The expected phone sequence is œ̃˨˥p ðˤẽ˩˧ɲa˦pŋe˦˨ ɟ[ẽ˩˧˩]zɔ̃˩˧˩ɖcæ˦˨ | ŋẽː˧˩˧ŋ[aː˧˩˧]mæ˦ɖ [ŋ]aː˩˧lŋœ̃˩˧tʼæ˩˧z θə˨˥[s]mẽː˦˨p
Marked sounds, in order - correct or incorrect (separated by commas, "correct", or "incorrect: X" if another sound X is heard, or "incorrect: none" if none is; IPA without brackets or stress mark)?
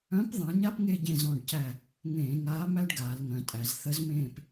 incorrect: ẽ˦˨, incorrect: aː˨˥, incorrect: ɡ, incorrect: z